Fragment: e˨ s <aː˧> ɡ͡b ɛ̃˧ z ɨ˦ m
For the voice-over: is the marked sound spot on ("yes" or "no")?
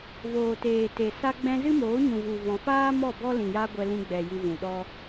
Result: no